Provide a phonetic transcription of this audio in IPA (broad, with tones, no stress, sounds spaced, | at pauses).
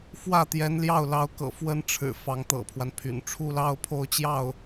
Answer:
f w ä˥˩ t̪ j ɛ˧˥ n l j ɑ˥˩ ʊ̯ l ɑ˧˥ ʊ̯ k ɤ̰˨˩ f w ə˥ n ʈ͡ʂʰ ɻ̩˨˩ f ɑ˧˥ ŋ t̪ ɤ̰˨˩ pʰ w a˦ n pʰ y̰˨˩ n ʈ͡ʂʰ u˥ l ɑ˥ ʊ̯ pʰ o˥˧ ʊ̯ t͡ɕ j ɑ˥˩ ʊ̯